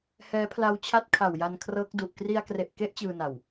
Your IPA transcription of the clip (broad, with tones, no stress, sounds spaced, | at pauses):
h ɛː˦˥ pʰ l a˦˥ w t͡ɕʰ a˦˥ t̚ kʰ a˨˩ w j a˧ n kʰ r ɤː˦˥ k̚ d u˨˩ ʔ k r i˧ a̯ k r e˨˩ ʔ k e˦˥ ʔ t͡ɕ ɯː˧ n a˨˩ w